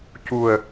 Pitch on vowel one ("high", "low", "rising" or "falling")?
low